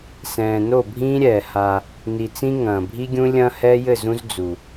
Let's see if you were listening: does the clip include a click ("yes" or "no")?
no